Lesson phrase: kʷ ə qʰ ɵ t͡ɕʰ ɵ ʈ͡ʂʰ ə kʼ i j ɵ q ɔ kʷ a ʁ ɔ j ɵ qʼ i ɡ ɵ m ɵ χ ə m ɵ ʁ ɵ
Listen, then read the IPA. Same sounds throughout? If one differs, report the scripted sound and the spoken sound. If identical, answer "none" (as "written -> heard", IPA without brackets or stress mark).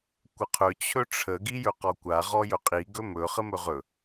kʼ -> ɡ